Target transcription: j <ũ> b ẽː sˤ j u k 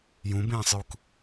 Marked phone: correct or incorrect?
correct